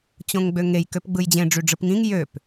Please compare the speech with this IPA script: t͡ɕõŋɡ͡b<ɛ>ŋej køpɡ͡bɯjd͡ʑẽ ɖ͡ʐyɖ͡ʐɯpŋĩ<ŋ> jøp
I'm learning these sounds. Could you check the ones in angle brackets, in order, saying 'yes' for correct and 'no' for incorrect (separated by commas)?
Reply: no, yes